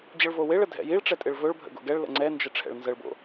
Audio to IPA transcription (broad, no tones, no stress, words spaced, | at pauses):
d͡ʑəɭvoweɭə dʱɛ̰jiɭʈ͡ʂɛ tʼɪɭvɵɭbʱə̰ ɡo̰ɡɛɭlə̰ ŋ͡ǀɛnd͡ʒə ʈ͡ʂʰɛ̰ɭnzəɭbo̰